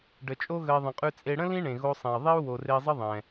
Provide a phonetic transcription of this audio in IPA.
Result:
ɖ ə˩ t͡ʃʼ o˦ ɣ ə˨ i̯ ðˤ ə̃˩ qʼ ʉ˨ t͡sʼ e˨ ɽ ə̃˥ l ĩ˦ ɳ ẽ˩ ɣ o˨ sˤ ẽ˩ i̯ ðˤ i˦ u̯ w o˩ r e˨ i̯ zˤ ə˦ ðˤ ɛ̃˩

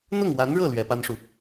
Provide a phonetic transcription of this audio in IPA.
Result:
n̪ ʊ˥˩ ŋ w a˧˥ n ɻ ɤ˥˩ l ɥ ɛ˧˥ p a˥ n ʂ u˨

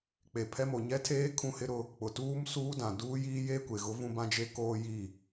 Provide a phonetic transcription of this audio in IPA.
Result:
k͡p e˨ pʰ ɛ˦ m o˨ ɲ ɛ˦ tʰ eː˦ kʰ ũ˦ h ɪ˦ ɾ ʊ˦ | k͡p ʊ˨ t uː˦ m s uː˦ d ã˨ d uː˦ j iː˦ j e˦ kʷ e˨ ɣ ʊ˦ v ũ˦ b ã˦ d͡ʒ e˦ k oː˦ j i˦˨

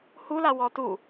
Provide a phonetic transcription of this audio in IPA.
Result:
h u l a w ɔ t u

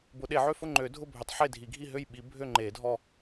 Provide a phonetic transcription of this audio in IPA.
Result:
b ʊ˨˩˦ ɗ e˨˩˦ ʕ ø˥˨ f ʊ˥˨ ŋ͡ǃ ø˨˩˦ dʱ ʊ˥˨ bʱ ø˨˩˦ tˤ ħ e˥˨ dʱ i˨˩˦ ɡʱ i˥˨ ɦ ø˥˨ j ɓ i˨˩˦ bʱ ø˥˨ ŋ͡ǃ e˨˩˦ dʱ ɔ˥˨

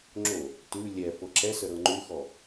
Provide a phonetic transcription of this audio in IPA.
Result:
ŋ͡ǁ o | t ʉ lʲ ɛ f ɤ ǁ ɛ s ə ɾ ɤ ŋ͡ǃ ʉ x ɔ

